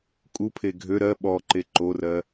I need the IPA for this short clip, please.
kʼ u pʰ e ɡʱ ø ɾ ɜ ɓ ɔ ǃ e ǃ o r ɜ

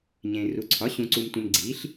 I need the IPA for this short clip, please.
ɲ ẽː˨ r u˩˥ ǀʰ ɒ˩˥ ɕ ũ˨ ǀ u˨ m tʷ ẽ˨ m ɡ͡ǀ i˩˥ ɬ

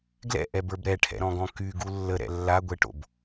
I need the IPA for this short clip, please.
ɡ l ɛ̰ ʔ ɛ b ə˞ b ɾ ɛ ʈʰ ɛ̰ ɾ ɔ̃ ɡ ɔ̃ k y ɡ u lː ə ɾ ɛ̰ lː a ɡʷ ɛ ʈ o̰ b

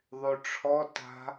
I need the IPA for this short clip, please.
ðˤ y ʈ͡ʂʰ ɔ t a̤

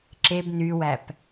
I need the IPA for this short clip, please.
ǁ e b n y w æ p

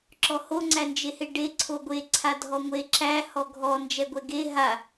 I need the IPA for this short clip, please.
ǁ ɔ h o ŋ͡ǀ æ n d͡ʒ e h e ɖ e ǀʰ o ɡʷ e ǀʰ a dʱ ɔ ŋʷ e ǁ æ h ɔ ɡʱ ɔ n d͡ʒ ɛ ɡʷ ɛ ɡ e ɦ a

